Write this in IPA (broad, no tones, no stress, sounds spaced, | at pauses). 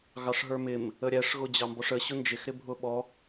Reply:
ɣ ɑ ʂ ɦ ə˞ m ɪ m | ə ɾʲ æ ʂ ɣ ʊ d͡ʑ ɑ m b ɔ ʂ ə ɕ ʊ n d͡ʒ ɪ x ɾ ɪ bʱ ʊ ɓ ɔ